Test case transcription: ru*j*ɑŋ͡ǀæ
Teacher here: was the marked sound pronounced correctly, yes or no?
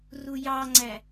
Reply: yes